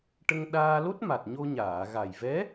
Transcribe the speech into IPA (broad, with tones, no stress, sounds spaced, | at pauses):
ʈ ə˧ ŋ ɗ aː˧ l o˦˥ t̚ m a˨˩ t̚ ɲ o˧ ɲ aː˨˩˨ ɣ a˨˩ j v ɛ˧˥